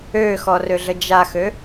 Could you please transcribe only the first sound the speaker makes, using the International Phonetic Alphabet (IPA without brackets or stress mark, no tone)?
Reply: ø